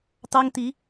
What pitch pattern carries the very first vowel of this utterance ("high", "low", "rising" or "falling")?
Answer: high